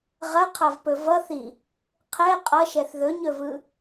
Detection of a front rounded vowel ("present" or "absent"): absent